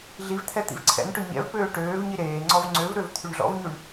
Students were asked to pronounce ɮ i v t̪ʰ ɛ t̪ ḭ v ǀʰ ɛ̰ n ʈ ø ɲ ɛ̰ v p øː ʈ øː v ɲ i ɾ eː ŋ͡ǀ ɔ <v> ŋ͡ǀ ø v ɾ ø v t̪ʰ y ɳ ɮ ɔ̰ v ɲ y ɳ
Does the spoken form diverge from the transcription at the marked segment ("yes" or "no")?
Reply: no